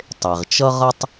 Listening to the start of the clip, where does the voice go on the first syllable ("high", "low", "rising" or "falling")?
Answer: low